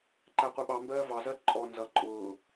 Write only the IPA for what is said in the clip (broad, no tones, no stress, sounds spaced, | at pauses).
ǃ æ qʷ ɪ ɓ ɑ m b ɜː v ɑ z ɜ ǃʼ ɔ n z ʌ ǃʼ ʊː